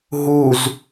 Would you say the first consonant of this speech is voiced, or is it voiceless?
voiced